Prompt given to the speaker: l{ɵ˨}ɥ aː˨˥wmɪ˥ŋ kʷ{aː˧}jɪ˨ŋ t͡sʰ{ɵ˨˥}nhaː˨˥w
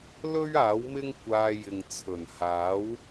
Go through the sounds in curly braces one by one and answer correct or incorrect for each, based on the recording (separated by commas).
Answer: incorrect, correct, incorrect